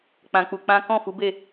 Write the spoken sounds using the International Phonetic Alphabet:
k͡p ã˧ k͡p u˧ k͡p ã˦ k ɔ̃˦˨ f u˨˦ b e˦˨

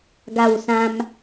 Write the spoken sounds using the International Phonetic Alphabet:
ɡ a˥˧ w s ã˦ m

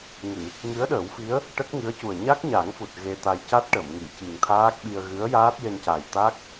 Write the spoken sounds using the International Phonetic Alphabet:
ŋ ɨ˨˩˨ | ŋ ɨ˧˥ ə̯ ɗ əː˨˩˦ w f i˧˥ ə̯ | ʈ ə˦˥ k̚ ŋ ɨ˧˥ ə̯ c u˨˩ ə̯ ɲ a˦˥ k̚ ɲ a˨˩˦ ŋ f u˨˩ t̚ ɣ e˧ t̪ a˧ j c a˦˥ t̚ ʈ ə˨˩˨ m ŋ i˨˩˨ c i˨˩ ŋ t̪ʰ aː˦˥ k̚ ɓ i˧ ə̯ ɣ ɨ˧˥ ə̯ j aː˦˥ t̚ j e˧ n c a˨˩ j t̪ a˦˥ k̚

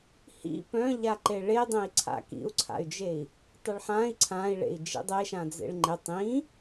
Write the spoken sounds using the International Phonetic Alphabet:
h ḭ p œ̃ ʎ a ǃ e ɭ e dˤ ẽ i̯ ǀʰ a̰ k ḭ u̯ ǀʰ a̰ y̯ d͡ʒ e i̯ | tˤ ɘ ɭ ħ ã i̯ ǀʰ ã i̯ ɭ ḛ i̯ d͡ʒ ḭ dˤ e ʃ ã d͡z ḛ ɭ ŋ͡ǃ ɪ tˤ ĩ

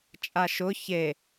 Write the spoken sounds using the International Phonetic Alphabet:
t͡ʃʼ a ʃ ʊ ç e

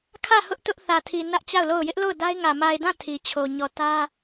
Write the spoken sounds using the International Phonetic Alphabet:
kʰ ä˦˨ h ʊ˦ ʔ t ʊ˦ ʔ θ ä˨ tʰ i˨ n ä˦ ʔ t͡ɕ a˦˨ ʊ̯ l o˦˨ ʊ̯ j ɪ˦ ʔ l o˦˨ ʊ̯ d a˦ ɪ̯ ŋ ä˨ m a˨ ɪ̯ d ã˦˨ tʰ i˨ t͡ɕʰ o˨ ɲ ɔ˨ t ä˦

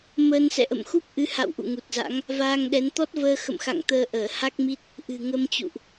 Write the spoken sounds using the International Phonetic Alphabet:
m əː˧ n s ɛ̰˧˨ ʔ ə̰˧˨ m x u˦˥ p̚ ʔ ɨ˨˦ h a̰˧˨ w ʔ ṵ˧˨ ŋ u˨˩ t̚ z a̰˧˥ ŋ | v aː˧ ŋ ɗ ɛ˨˦ n t̪ ɔ˦˥ t̚ v əː˧ x ə̰˧˨ m x a̰˧˨ ŋ t̪ əː˧ ʔ əː˧˩ h a˦˥ k̚ m i˦˥ t̚ | ʔ ɨ̤˨˩ ŋ ə˧ m t͡ɕ ṵ˧˨ ʔ

